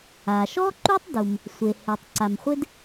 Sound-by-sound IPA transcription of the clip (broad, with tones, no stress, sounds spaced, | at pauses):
a˩ ʃ ɔ˥ ǃ u˥ tˤ d u˩ m | sʷ e˩ h e˩ tˤ ǀ a˩ m χʷ ɪ˥ d